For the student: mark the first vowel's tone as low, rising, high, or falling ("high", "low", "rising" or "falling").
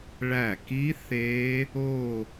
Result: falling